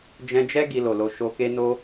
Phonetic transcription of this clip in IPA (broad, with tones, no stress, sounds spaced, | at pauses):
d͡ʒ ɛ̃˧ d͡ʒ ɛ˦ ɡ i˧ l o˨ l o˧ ʃ o˧ k e˦ n o˦